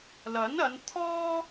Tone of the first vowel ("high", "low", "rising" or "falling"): rising